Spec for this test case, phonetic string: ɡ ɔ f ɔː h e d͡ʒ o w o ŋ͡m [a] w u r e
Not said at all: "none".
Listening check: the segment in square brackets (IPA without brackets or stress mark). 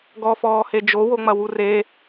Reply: ɐ